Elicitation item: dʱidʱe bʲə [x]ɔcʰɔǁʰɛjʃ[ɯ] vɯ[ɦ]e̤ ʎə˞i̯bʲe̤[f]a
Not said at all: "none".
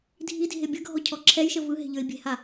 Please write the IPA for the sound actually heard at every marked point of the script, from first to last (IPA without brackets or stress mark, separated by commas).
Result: ɡʱ, ə, ɦ, h